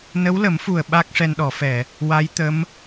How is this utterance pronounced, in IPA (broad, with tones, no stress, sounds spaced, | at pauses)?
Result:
n ə˧˥ w l ə˨˩˦ m f u˨˩ ə̯ ɓ a˦˥ k̚ ʂ ɛ˧ n ɗ ɔ˨˩˦ f ɛ˨˩˨ | w a˧˥ j t̪ ə˧˥ m